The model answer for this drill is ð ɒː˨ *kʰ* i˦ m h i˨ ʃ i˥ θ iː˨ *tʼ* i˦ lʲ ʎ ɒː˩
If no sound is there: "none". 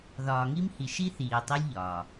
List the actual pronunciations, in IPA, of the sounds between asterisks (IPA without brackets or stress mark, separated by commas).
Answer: ŋ, tˤ